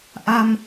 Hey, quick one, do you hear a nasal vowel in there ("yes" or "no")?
no